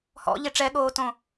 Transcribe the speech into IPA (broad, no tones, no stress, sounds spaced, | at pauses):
h ɔ̰ ʎ e ʈ͡ʂ ɛ ɠ oː t õ